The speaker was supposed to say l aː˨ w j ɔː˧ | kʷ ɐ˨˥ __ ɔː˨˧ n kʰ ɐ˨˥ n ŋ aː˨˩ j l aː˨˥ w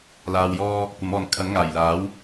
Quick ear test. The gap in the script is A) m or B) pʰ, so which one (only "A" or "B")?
A